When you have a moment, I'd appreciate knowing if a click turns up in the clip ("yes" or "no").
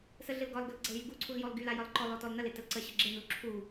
yes